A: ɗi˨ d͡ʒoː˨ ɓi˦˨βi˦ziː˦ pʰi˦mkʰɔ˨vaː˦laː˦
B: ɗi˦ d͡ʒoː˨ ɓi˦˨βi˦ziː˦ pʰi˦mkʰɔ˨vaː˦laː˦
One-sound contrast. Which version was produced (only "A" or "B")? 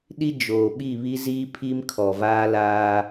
B